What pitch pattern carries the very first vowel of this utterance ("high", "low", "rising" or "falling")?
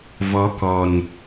rising